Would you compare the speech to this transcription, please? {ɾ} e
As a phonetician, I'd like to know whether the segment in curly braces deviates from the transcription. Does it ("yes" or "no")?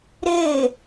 no